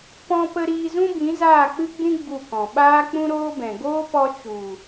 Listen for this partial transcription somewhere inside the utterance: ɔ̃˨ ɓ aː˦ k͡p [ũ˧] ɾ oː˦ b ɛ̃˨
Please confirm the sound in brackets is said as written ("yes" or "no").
no